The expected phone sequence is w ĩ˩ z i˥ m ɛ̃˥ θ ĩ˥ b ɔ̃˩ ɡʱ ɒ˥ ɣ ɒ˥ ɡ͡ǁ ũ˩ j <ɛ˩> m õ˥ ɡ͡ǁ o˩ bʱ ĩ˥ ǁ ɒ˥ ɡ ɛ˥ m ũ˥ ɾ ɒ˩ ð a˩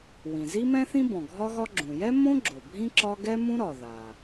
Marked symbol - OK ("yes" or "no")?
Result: no